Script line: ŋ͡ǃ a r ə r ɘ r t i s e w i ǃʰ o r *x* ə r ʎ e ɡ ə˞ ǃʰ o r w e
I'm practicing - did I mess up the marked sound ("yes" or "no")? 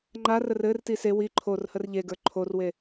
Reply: yes